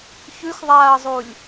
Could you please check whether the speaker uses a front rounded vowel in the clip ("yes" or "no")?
no